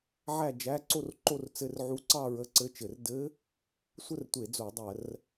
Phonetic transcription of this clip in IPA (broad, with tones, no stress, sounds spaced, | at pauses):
ʕ æ˥˧ d͡ʒ æ˧˥˧ ǀ o˥˧ r ǃ o˥˧ r t͡s ɘ˧˥˧ r ʕ u˧˥ ǀ ɑ˥˧ ɹ ə˧˥˧ ǀ ɘ˧˥˧ t͡ʃ ɘ˧˩˧ r d ɘ˧˥ | sʷ ə˥˧ r tʷ e˧˩˧ d͡z o˧˩˧ dˤ ɜ˧˩˧ r